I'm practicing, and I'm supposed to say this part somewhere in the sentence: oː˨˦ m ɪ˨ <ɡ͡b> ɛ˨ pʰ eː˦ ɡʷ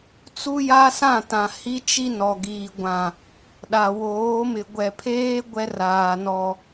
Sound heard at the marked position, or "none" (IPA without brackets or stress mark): ɡʷ